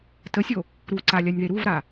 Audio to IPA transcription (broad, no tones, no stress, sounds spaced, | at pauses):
t ə sʲ o | ɾ u ǀ a lʲ a nʲ ð e ɾ u v ɾ a